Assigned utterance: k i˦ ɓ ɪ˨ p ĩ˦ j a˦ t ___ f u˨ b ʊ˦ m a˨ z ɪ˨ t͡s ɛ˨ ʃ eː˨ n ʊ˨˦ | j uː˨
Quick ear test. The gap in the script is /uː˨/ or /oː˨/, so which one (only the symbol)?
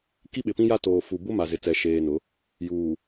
oː˨